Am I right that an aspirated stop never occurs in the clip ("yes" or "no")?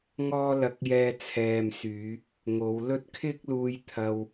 no